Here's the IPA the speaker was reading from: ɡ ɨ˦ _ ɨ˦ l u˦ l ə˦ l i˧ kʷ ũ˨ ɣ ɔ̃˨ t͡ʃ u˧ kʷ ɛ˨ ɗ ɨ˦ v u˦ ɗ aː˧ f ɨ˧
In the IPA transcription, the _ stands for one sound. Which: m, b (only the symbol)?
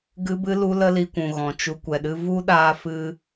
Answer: b